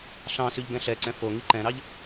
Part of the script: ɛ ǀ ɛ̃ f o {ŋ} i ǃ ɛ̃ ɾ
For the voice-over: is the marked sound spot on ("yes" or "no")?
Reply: yes